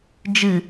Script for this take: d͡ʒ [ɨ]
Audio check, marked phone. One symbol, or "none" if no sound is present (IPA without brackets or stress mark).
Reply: ɨ